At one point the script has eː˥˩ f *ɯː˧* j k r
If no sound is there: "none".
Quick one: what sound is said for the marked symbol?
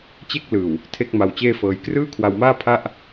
ɤː˧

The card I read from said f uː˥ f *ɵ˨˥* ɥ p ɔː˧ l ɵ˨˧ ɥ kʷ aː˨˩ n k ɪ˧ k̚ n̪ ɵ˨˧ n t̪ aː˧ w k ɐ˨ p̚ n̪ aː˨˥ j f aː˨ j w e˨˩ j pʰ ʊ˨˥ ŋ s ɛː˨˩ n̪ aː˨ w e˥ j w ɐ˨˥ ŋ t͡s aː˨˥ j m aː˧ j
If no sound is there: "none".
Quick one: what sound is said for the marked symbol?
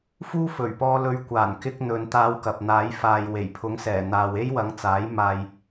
ɵ˨˩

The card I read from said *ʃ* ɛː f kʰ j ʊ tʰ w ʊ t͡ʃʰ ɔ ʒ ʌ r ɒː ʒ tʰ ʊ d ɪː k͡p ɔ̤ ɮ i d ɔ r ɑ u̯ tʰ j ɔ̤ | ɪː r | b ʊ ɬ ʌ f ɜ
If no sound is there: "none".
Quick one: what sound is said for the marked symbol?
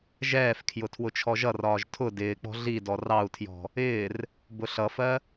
ʒ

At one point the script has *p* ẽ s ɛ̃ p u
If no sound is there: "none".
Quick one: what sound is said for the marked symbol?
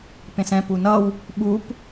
p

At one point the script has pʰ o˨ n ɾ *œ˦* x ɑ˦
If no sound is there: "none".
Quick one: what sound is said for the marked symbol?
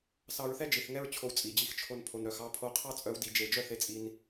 œ˨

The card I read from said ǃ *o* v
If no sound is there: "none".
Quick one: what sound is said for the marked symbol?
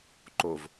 o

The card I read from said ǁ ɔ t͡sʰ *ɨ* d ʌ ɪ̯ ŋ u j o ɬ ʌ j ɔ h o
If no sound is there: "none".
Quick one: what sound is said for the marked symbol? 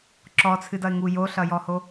ɨ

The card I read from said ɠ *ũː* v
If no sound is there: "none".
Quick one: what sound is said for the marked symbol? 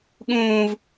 ũː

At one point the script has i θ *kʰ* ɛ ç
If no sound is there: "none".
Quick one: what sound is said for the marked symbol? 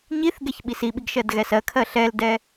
ɡ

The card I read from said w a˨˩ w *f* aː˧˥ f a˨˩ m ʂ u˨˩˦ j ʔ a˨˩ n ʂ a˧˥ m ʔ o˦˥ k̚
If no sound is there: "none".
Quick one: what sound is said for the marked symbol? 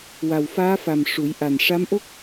f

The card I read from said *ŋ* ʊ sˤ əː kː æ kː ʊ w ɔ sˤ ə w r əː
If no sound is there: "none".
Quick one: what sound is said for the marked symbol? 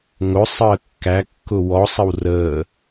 ŋ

